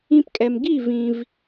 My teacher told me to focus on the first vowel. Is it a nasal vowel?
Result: yes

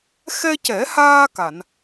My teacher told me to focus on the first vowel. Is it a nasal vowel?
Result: no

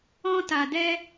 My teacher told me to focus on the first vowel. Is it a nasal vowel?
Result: yes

